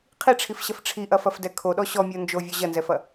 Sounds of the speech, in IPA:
qʰiʈ͡ʂʰifɕɐf ʈ͡ʂʰiʔɐfɐfdɛ kʰoɗɔ ɕɔmʲo nd͡ʒovʲɔ ʑɐnzɛfɐ

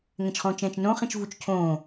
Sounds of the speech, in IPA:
ŋɛ̃t͡ʃχõːt͡ʃɛ̃ːt͡ʃnõ χĩt͡ʃvut͡ʃcʰõː

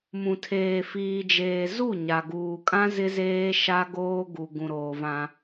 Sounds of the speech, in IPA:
mũ˨tʰeː˨fiː˨d͡ʒeː˨ zu˦˨ ɲa˨ɡuː˨kʼã˦ zɪ˦zeː˦ ʃa˦ɡoː˦ ɡu˨ ɡũ˨ɾoː˨vã˦

